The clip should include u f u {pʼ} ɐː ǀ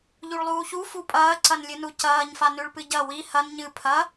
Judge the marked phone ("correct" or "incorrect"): correct